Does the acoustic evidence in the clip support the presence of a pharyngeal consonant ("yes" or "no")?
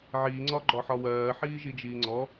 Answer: yes